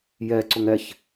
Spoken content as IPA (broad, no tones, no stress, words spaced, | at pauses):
jɛǀʊŋ ɛç